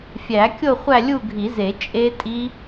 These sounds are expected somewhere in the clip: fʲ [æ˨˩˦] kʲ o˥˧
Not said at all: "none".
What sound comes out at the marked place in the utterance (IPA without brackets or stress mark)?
æ˨˩˦